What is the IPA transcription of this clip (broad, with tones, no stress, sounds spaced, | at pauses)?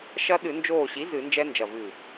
ʃ ɐ˦˥ ɗ ɨ˧˩˧ n d͡ʒ oː˧˩ ɕ i˩˥ z ɨ˧˩˧ n d͡ʒ ɛ˦˥ n d͡ʒ ɐ˧˩ v ɨ˧˩